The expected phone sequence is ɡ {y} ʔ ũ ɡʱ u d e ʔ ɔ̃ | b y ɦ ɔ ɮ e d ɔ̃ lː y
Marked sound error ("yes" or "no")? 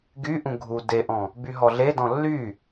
no